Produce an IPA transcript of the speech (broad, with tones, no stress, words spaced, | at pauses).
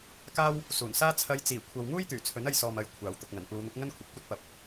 kaː˥w | suː˨˩nsaː˥ t͡sʰɐ˧jt͡siː˨˩ kʷʰɐ˨wŋuː˥j t̪yː˨˩t͡sʰɵ˨˥nɐ˧jsɔː˨m ɐ˨j kʷʰaː˨˩wt̪ʊ˨k̚ ŋɐ˨˩npuː˨˧n̪ʊ˨˥k̚ ŋɐ˥nkʷʰɐ˨˥p̚kʷɐ˥t̚ pɐ˨p̚